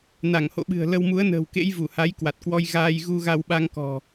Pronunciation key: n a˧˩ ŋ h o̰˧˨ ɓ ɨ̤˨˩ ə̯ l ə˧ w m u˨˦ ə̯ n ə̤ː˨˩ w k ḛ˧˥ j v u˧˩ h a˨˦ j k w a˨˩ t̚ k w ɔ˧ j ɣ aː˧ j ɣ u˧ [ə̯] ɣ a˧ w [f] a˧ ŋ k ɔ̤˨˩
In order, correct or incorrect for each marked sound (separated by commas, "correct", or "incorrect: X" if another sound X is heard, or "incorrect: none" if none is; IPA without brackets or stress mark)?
incorrect: none, incorrect: ɓ